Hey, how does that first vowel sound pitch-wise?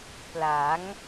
rising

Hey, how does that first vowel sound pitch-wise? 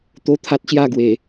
high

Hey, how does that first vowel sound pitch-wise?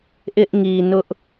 high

